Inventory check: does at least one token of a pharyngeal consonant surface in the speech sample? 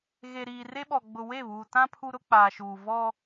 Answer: no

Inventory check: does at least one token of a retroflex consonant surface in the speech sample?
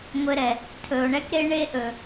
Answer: yes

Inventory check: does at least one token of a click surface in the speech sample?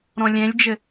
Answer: no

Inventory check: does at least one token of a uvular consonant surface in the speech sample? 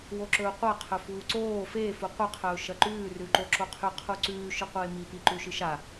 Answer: yes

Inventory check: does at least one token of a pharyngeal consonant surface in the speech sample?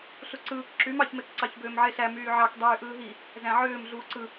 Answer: yes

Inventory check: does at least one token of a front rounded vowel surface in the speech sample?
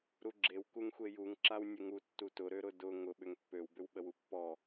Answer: yes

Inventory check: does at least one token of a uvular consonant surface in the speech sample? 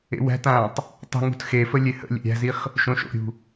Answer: yes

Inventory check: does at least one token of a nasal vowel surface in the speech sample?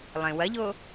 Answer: yes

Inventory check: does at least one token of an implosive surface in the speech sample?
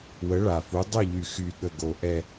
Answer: yes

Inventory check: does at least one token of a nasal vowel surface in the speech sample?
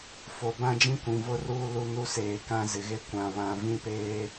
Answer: yes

